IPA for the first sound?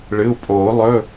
ɭ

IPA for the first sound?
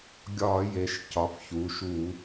ɡʲ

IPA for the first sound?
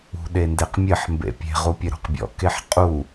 ṳ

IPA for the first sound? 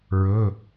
ɹ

